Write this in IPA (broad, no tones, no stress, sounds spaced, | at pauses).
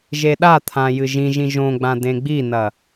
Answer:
ʒ e ɗ a t̪ʰ ã j ɨ ʒ ĩ ʒ ĩ ʒ õ ɡ͡b ã d ẽ ɡ͡b i n ɐ